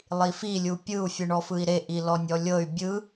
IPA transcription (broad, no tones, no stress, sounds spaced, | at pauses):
lˠ i f i lʲ u pʲ ɯ u̯ fʲ ɯ ɳ ɔ f ɯ i̯ ɾ e ʔ i l ɔ nʲ ɔ lʲ ɤ y̯ bʲ ɯ